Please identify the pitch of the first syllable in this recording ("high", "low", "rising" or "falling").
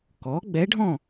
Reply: rising